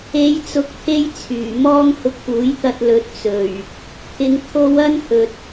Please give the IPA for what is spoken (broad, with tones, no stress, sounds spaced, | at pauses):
e˨˧ j t͡s ʊ˨˥ k̚ t̪ʰ e˥ j t͡sʰ yː˨˩ m ɔː˥ ŋ h ʊ˧ k̚ p uː˨˥ j t̪ ɐ˧ t̚ l ɵ˨ t̚ t͡s ɵ˨˩ ɥ | t̪ʰ ɪ˨˧ ŋ t̪ʰ o˧ w ɐ˥ n h ɵ˨ t̚